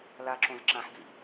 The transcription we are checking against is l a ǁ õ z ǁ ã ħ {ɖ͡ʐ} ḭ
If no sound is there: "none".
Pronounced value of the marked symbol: d͡z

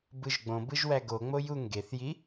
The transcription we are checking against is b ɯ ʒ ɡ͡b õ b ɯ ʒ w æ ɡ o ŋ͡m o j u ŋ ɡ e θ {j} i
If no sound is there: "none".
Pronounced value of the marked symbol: j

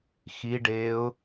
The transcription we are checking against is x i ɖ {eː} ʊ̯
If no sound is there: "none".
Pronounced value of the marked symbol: eː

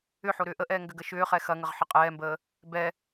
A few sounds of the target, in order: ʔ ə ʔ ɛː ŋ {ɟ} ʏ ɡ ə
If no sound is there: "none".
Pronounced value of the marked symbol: ɡ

